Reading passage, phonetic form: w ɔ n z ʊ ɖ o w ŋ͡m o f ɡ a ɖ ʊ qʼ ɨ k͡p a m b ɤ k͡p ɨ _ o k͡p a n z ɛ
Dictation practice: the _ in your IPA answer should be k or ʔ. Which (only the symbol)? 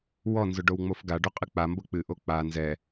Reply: ʔ